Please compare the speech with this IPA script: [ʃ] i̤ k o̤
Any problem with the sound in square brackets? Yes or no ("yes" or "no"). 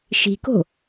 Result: no